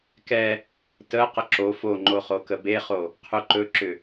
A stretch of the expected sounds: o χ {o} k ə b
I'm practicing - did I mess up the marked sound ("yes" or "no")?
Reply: no